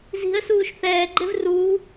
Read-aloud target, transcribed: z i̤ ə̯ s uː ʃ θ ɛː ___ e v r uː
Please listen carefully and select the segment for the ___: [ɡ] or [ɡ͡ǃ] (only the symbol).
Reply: ɡ͡ǃ